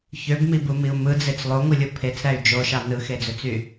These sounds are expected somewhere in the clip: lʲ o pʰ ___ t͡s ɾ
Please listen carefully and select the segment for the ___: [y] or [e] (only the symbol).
e